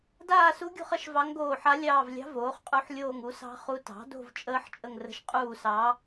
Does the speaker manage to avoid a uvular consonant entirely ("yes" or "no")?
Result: no